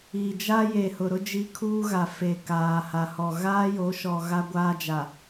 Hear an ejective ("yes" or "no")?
no